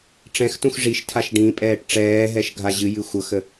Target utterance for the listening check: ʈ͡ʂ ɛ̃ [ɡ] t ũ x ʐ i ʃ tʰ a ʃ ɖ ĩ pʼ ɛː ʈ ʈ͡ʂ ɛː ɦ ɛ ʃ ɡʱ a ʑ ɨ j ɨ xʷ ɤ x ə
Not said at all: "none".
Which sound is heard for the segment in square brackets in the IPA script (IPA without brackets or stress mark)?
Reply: x